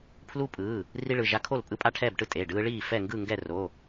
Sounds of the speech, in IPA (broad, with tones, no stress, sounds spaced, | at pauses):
pʰ l u˦ pʼ ɯː˩˧˩ | r i˦ ɭ ɯ˩˧˩ ʒ a˦ kʰ o˥˨ l pʼ ɯ˦ pʼ a˥˨ ʈʰ ɛː˥˨ b ʈ ɯ˦ tʼ e˩˧˩ ɖ ɯː˦ ɭ iː˥˨ f ɛ˥˨ ŋ ɡ ɯ˥˨ ŋ ɡ ɛ˥˨ r o˩˧˩